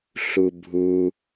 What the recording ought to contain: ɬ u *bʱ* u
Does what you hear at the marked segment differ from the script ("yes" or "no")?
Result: no